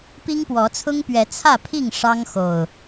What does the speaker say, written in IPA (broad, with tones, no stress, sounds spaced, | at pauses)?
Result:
p i˦ ŋ p w ɔ˨˦ t͡sʰ ʊ˦ ŋ p ɥ ɛ˨˦ t͡sʰ ä˥˨ pʰ i˥˨ ŋ ʂ ɑ˦ ŋ x o˨˩ ʊ̯